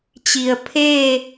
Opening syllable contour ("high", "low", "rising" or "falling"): low